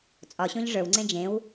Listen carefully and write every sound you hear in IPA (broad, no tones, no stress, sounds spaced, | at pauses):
t͡sʼ ɒ ɕ õ ʎ ʐ ə˞ w ŋ͡ǀ ẽ d͡ʒ ẽ w